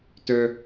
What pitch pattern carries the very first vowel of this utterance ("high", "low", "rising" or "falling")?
high